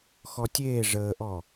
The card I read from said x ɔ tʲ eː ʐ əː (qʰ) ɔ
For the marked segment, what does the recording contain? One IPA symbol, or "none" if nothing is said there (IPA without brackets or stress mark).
ʔ